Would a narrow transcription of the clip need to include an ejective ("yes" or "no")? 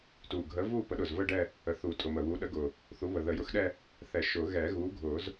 yes